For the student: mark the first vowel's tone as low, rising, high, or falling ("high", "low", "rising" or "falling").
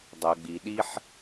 low